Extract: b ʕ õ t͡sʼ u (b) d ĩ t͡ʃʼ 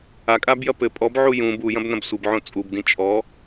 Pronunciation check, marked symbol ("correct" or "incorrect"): correct